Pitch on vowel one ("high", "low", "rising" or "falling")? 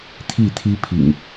falling